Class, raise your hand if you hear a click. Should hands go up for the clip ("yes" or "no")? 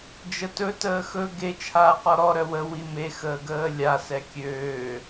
no